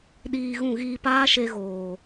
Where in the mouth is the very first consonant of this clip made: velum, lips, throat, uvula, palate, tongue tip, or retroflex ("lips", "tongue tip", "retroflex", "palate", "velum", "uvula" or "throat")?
tongue tip